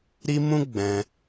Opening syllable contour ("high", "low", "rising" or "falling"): high